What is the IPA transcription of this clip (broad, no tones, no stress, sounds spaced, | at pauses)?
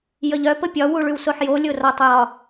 j ə ʎ œ p ə pʲ ɒ w u ɭ ʉ w s o ħ j o lʲ o r ɒ tˤ j ɒ